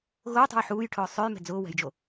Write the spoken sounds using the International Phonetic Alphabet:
ɣ ʊː tˤ ṳ j ħ uː j ʈʰ ʊː sˤ ø j m ɛ̤ d͡z ʊː w ɛ̤ j d͡ʒ o

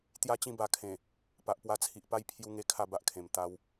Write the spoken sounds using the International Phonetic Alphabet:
t̪ j a˥˧ t͡ɕ ĩ˥˧ b a˧ kʰ ẽ˨˩ | p a˨ ʔ p w a˧ t͡sʰ i˨ ʔ p a˥˧ j pʰ j u˦ ŋ e˦ kʰ a˥˧ b a˦ ʔ kʰ ẽ˨˩ m t̪ a˧ w

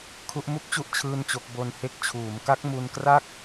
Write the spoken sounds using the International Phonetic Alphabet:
kʰ u˦˥ ʔ m u˥˩ k̚ t͡ɕ u˥˩ ʔ t͡ɕʰ ɯː˥˩ n t͡ɕ o˦˥ k̚ b o˧ n h e˦˥ k̚ t͡ɕʰ uː˩˦ m k a˦˥ k̚ m u˧ n k r a˥˩ k̚

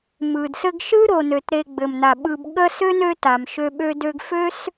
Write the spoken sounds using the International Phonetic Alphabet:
m ɯ˩ d s ɘ˦ ɡ ʃ ɯ˥ ɾ o˨ n ø˩ t ɾ e˨ ɡ͡b ɘ˩ m n a˩ ɓ ɯ˨ b ɠ ə˦ s ø˥ n ø˦ t a˩ m ʃ ø˦ ɓ ø˥ d ø˥ ɡ f ø˥ s

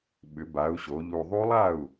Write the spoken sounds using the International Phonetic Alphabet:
ɓ ʏ˩˧ b a˩˧ u̯ ɕ o˩˧ ʎ u˨˩ ðˤ u˦˥ lˠ a˥˩ u̯

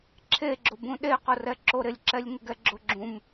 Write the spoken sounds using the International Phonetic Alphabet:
ǁʰ e ɡ͡ǁ ʊ b ũ ɗ e q ʊ r ɛ ǁ o ɾ ɪ lʲ ǁ ɛ lʲ ŋ ɪ ɡ ɛ ɡ͡ǁ ʊ ɡ͡ǁ ũ m

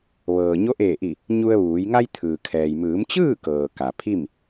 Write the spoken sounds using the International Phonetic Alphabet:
ʋ ɤː˩ ɲ o˧˥ ʔ eː˧˩ ʔ i˧˩ | ɲ u˧ ə̯ ʋ uː˩˧ j ŋ a˧ j t̪ʰ ɯː˩ kʰ ɛː˩ j m ɯː˩˧ m t͡ɕ ɯː˥˨ k ɤː˩ k a˩ pʰ i˥˨ m

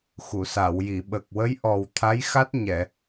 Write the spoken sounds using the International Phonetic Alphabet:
x u˨˩˨ s a˨˩˨ w j i˨˩˨ ɓ ə˨˩ k̚ w ə˧˥ j ʔ ɔ˨˩ w t̪ʰ a˧˥ j x a˦˥ t̚ ɲ ɛ˨˩˨

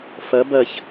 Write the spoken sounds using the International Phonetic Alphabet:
f ʌ b ʌ ç

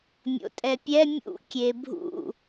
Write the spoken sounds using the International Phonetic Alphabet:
mʲ o̰ tʼ ɛ pʲ ɛ mʲ ṵ kʲ e bʱ ṵ

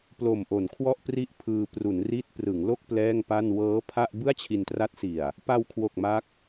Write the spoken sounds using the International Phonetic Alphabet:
p l o˨˩ m ʔ o˩˦ n kʰ w ɔ˥˩ ʔ p r i˥˩ ʔ pʰ ɯː˧ p r u˩˦ n r i˦˥ t̚ p r ɯ˩˦ ŋ l o˥˩ k̚ p l ɛː˥˩ ŋ p a˥˩ n w ɤː˦˥ pʰ a˥˩ ʔ b ɯ˥˩ a̯ t͡ɕʰ i˧ n t r a˦˥ t̚ s i˨˩ a̯ | p a˧ w kʰ w o˨˩ k̚ m a˦˥ k̚

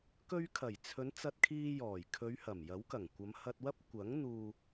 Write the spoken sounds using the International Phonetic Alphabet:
k ɵ˧ ɥ kʰ ɐ˨˩ j t͡sʰ ɵ˨˧ n t͡s ɐ˧ t̚ kʰ iː˧ j ɔː˨˩ j kʰ ɵ˨˧ ɥ h ɐ˨˩ m j ɐ˨˥ w k ɐ˨˩ ŋ kʷ ɐ˨˧ m h ɐ˧ t̚ w ɐ˥ p̚ kʷ ɐ˨˥ ŋ n̪ uː˨

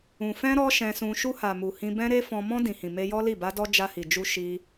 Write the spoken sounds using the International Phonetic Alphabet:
ũ˨ f ɛ̃˧ ɾ ɔ˦ ʃ ɛ̃˧ s ũ˧ ʃ u˧ h a˨ m u˨ h ĩ˧ b ɛ̃˦ ɾ e˦ f ɔ̃˧ m ɔ̃˧ d ĩ˨ h ĩ˨ m e˧ j ɔ˦ l i˦˨ b a˧ d ɔ˧ d͡ʒ a˧ h i˨ d͡ʒ u˧ ʃ i˧

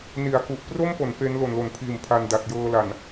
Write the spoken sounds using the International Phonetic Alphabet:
n i˩˦ a̯ k u˨˩ ʔ p r o˥˩ m p o˩˦ n p e˦˥ n l o˨˩ n l o˩˦ n pʰ iː˨˩ m pʰ a˧ n d a˨˩ t̚ j ɤː˧ l a˨˩ n

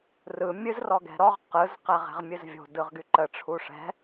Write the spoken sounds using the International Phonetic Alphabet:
r ɯ mʲ ɨ z r ɔ ɡ ɛ̤ ɾ ɔ ʁ q ɯ z q ɛ ʁ ɛ̤ ʁ mʲ ɨ z vʲ o̤ d ɯ ʁ ɡ y ǃ ə ʈ͡ʂʰ u ʂ ɛ̤

